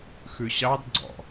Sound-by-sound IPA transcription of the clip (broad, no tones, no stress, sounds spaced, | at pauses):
x ʉ ɕ ɑ d ɡ͡ǀ ɔ̰